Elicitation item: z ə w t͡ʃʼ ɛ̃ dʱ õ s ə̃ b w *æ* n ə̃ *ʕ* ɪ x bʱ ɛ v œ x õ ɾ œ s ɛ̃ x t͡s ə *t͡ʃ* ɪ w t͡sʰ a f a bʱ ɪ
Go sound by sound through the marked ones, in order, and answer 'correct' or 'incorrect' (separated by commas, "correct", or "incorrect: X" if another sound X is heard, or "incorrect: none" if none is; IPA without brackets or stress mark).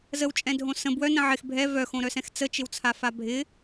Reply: incorrect: œ, correct, correct